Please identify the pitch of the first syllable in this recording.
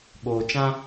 low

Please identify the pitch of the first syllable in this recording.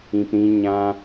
low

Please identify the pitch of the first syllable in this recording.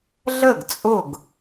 falling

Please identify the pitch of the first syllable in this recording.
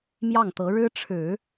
falling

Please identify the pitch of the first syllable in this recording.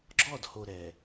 falling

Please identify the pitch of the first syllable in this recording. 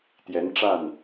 rising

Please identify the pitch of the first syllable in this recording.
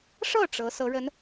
falling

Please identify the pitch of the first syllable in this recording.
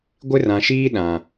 high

